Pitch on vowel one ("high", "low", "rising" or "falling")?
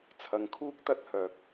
low